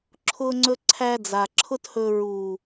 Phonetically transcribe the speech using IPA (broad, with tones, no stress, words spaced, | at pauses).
ǁʰʊː˦ŋ͡ǀɵ˦ǀʰæ˦d͡za˨ ǁʰʊ˦thɵ˧ ɹuː˨